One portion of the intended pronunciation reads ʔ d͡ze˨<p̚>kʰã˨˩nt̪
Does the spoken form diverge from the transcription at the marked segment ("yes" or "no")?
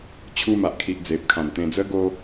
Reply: no